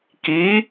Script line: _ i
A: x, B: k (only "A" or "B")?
B